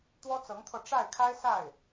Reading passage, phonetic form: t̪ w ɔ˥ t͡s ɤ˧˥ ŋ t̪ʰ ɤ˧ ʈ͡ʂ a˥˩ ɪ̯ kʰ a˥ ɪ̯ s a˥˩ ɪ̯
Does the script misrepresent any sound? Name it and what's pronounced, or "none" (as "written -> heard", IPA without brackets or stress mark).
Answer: none